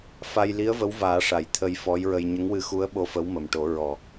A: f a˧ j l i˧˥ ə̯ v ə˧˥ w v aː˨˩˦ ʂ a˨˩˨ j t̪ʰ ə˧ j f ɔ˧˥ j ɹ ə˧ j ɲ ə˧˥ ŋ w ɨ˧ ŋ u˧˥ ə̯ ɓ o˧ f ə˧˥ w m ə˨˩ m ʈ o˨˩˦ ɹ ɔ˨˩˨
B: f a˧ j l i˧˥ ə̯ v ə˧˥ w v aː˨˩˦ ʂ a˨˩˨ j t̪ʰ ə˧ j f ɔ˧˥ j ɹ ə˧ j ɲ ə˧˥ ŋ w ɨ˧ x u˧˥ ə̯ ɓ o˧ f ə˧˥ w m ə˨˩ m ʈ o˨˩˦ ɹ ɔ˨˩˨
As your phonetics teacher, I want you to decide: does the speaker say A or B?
B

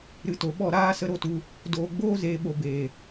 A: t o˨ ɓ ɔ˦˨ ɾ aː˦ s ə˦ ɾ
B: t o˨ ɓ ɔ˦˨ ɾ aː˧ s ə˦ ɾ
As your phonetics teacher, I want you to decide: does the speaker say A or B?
A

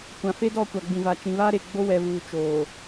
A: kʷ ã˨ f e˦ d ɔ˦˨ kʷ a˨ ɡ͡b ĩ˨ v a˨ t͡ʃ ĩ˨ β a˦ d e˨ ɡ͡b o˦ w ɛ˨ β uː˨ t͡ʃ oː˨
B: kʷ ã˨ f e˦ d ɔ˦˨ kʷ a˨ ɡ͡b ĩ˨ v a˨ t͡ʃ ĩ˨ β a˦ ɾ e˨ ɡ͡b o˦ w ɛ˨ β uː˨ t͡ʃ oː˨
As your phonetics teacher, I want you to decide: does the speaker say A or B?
B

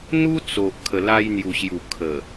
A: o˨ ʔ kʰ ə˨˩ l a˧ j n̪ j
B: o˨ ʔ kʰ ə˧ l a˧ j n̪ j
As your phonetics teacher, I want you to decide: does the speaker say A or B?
A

